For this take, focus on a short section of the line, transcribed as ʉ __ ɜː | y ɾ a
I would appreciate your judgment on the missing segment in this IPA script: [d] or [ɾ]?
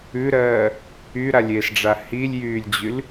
ɾ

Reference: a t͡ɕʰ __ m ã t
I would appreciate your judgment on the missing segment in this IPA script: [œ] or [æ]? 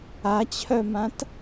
œ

